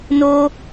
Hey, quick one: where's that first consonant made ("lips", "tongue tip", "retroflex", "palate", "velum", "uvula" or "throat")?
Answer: tongue tip